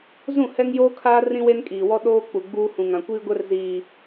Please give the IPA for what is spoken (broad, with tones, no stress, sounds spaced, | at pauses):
z ũ˦˨ h ɛ˦ ŋ j oː˦ kʰ aː˦ r ĩ˦ w e˦ n kʼ iː˨ w ɔ˦ ɗ oː˦ k͡p u˨ ɡ͡b uː˦ h ũ˨ ŋ ã˨ kʷ iː˦ ɡʷ ɛ˦ r z iː˨